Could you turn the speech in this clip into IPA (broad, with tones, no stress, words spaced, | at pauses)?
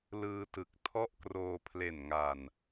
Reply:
lɯː˧tɯ˨˩k̚ tʰɔ˥˩ʔkroː˧ pʰle˨˩nŋa˨˩n